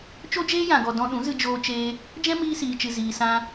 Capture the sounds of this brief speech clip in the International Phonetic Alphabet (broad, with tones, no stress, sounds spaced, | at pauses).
t͡ʃ o˦ d͡ʒ eː˦ j ã˨ ɡ ɔ˨ d ɔ̃˧ ɗ ũ˨˦ z ɨ˧ d͡ʒ oː˧ t͡ʃ eː˧ | d͡ʒ ɛ̃˦ m iː˧ s iː˨ t͡ʃ ɨ˨ z iː˨ s ã˧